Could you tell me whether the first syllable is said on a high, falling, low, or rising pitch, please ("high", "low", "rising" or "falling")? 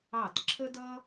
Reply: falling